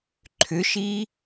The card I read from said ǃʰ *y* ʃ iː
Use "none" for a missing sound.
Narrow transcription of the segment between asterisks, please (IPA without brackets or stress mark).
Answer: ʏ